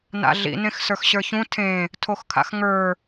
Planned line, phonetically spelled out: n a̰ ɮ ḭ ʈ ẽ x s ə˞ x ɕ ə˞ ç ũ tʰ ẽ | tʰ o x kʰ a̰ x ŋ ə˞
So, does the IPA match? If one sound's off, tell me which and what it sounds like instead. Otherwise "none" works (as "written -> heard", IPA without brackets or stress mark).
ʈ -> n